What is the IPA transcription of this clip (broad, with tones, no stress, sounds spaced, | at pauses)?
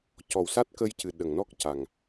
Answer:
c ɔ˨˩˨ w s a˦˥ t̚ k ə˧ j c ɨ˨˩˨ ɗ ə˨˩˨ ŋ n ɔ˦˥ k̚ c a˨˩ ŋ